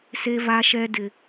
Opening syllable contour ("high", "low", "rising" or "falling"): high